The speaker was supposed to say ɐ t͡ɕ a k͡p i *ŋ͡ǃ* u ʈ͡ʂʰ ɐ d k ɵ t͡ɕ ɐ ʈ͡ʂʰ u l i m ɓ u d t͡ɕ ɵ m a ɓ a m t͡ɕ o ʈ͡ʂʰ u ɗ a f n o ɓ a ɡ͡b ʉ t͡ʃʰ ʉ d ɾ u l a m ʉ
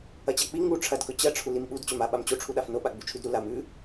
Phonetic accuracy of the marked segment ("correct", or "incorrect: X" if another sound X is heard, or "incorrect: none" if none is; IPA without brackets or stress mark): incorrect: ŋ